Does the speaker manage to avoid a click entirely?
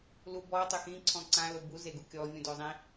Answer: no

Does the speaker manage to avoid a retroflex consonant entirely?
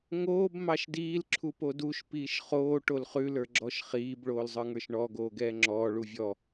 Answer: no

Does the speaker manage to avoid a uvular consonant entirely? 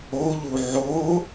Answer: yes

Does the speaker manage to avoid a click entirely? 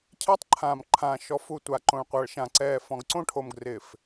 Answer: no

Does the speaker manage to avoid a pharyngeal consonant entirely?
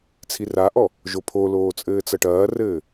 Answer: yes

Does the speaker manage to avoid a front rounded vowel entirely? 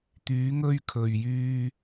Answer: no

